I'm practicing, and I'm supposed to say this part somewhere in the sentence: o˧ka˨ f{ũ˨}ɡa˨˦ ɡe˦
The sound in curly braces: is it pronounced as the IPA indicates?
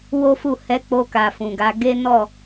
yes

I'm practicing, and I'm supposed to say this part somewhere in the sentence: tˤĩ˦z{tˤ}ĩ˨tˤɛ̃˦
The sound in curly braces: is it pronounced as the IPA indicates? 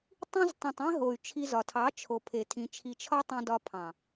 yes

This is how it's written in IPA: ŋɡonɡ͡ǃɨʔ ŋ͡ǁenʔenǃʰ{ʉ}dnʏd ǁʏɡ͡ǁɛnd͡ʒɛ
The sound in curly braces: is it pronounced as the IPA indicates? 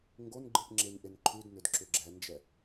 yes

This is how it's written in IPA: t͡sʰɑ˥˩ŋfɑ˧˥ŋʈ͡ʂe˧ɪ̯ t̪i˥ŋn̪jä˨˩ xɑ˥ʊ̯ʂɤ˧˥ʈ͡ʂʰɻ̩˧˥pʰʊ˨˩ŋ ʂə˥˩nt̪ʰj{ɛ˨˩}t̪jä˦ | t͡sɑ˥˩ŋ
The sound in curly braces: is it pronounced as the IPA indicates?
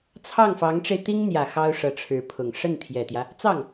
yes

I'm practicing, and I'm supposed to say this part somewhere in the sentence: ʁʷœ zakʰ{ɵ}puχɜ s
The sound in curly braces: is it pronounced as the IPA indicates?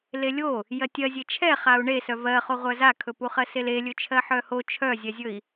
yes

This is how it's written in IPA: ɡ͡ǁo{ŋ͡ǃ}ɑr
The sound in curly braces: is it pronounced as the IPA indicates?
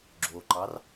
no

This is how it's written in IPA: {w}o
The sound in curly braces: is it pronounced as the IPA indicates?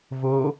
no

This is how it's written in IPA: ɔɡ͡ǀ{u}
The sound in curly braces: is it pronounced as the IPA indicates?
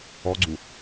yes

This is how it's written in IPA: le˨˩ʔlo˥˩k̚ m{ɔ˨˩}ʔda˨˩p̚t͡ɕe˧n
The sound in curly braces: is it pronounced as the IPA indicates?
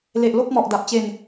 yes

